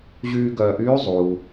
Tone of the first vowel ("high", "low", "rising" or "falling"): high